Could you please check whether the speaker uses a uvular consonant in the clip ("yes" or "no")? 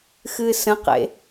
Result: yes